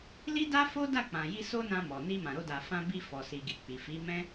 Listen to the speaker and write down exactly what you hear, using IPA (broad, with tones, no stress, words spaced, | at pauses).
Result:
li˦da˦fo˦ da˦˨k͡pã˨ji˧ so˦nã˧mɔ˨ ni˧mã˨ɾo˧da˨ fã˧bi˧ fɔ˨si˨ɡi˨ k͡pi˨fi˨˦mɛ̃˦